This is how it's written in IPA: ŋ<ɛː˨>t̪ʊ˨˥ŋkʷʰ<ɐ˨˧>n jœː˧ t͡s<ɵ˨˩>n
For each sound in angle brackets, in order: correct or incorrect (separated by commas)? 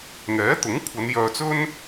incorrect, correct, incorrect